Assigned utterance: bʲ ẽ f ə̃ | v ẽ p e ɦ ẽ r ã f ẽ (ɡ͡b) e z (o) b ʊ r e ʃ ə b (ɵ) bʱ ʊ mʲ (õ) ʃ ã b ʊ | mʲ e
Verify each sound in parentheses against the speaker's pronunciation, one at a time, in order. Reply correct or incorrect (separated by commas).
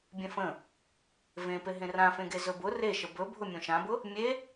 incorrect, incorrect, correct, correct